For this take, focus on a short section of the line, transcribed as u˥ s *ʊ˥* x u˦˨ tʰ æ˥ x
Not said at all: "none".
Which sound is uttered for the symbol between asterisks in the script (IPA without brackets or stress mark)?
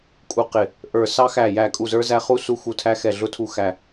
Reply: u˥